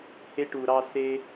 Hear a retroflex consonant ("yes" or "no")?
yes